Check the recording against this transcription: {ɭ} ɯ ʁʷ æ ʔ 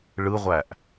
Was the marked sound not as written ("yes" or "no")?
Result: no